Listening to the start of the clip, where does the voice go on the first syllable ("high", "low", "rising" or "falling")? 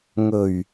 low